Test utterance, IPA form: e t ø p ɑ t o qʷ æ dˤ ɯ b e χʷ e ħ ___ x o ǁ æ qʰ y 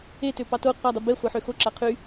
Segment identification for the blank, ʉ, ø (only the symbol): ø